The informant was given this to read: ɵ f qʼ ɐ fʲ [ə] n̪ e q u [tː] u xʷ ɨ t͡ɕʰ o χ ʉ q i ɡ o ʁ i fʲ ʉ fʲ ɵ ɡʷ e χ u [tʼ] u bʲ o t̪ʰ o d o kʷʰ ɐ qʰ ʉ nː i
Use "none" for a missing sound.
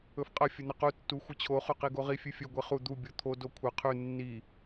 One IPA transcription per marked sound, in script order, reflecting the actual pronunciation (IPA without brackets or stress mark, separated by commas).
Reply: ɵ, tː, d̪